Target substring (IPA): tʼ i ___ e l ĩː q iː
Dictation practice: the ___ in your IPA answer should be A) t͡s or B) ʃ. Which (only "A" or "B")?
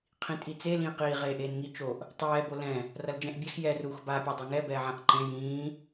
A